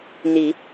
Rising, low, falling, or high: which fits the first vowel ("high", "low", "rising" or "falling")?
rising